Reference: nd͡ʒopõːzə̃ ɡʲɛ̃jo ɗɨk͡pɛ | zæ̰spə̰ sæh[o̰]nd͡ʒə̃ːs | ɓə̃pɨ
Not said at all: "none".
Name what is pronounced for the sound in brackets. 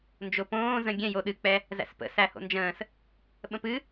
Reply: o̰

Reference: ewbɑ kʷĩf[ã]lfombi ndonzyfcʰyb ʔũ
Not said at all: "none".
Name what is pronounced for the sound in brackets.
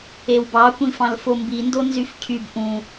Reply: ɑ̃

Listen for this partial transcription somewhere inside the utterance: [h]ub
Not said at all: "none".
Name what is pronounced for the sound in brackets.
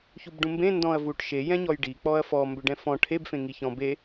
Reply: ç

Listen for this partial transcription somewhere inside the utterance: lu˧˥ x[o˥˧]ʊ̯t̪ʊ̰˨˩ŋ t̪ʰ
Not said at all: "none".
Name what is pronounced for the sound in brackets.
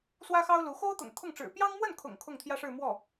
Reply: o˥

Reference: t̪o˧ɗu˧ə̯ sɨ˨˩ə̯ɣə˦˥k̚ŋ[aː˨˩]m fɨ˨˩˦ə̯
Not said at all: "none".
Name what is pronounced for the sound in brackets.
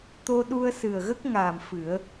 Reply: aː˨˩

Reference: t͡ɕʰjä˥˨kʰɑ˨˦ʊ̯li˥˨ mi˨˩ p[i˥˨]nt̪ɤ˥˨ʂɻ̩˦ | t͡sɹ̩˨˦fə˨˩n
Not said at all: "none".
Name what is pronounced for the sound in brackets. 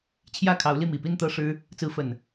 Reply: i˥˨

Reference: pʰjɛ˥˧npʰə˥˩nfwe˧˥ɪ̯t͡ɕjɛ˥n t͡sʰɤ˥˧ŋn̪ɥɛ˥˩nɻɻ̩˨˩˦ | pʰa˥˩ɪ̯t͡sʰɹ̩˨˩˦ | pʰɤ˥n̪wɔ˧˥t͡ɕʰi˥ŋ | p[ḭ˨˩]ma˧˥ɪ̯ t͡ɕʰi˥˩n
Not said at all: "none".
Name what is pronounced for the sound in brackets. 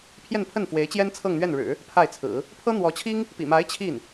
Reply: ḭ˨˩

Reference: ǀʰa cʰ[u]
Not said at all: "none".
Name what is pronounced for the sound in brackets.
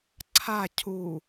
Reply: u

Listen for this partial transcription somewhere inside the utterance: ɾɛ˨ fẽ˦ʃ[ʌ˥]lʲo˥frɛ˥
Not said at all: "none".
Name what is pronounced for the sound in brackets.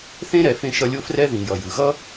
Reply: ʌ˦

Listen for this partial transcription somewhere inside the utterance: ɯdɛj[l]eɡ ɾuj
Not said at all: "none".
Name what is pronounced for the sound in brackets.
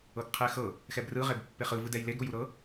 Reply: l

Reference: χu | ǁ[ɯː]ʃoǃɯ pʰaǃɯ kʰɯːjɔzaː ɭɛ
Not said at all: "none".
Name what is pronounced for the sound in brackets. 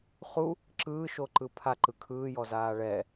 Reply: ɯː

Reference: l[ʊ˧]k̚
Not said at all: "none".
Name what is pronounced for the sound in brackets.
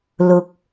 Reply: ʊ˧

